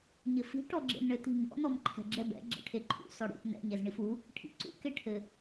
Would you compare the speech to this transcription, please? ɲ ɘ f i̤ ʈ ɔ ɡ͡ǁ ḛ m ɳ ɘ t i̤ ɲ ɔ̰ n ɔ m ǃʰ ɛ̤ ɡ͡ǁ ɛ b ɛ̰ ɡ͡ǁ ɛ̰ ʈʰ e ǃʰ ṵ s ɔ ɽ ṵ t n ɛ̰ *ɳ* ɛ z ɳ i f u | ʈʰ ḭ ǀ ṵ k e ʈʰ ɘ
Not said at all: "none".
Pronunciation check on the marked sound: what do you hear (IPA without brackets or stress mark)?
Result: ɲ